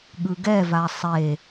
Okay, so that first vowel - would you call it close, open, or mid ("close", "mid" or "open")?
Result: close